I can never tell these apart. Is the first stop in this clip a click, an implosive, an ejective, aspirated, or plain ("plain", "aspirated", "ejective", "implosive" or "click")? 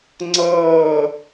click